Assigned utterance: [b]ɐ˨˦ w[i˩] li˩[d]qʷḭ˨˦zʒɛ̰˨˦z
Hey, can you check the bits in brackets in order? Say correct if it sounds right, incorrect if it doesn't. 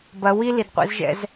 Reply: correct, incorrect, correct

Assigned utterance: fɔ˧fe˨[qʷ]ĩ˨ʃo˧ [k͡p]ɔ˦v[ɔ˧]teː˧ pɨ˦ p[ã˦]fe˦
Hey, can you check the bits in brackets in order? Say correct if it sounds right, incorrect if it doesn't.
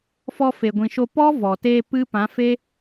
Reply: incorrect, incorrect, incorrect, incorrect

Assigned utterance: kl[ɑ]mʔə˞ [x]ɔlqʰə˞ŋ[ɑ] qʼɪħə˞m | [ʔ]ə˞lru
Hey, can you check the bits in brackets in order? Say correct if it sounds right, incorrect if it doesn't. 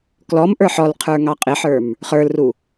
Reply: incorrect, incorrect, correct, incorrect

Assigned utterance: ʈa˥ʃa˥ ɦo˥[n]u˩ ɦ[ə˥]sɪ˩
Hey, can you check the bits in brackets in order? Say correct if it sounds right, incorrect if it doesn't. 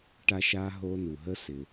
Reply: correct, correct

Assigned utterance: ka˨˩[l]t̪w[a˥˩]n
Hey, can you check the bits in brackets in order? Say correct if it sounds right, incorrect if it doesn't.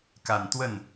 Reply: incorrect, incorrect

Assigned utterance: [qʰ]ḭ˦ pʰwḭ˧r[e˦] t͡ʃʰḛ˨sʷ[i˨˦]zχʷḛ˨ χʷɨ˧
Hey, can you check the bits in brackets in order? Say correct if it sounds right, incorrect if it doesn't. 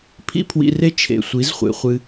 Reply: incorrect, correct, correct

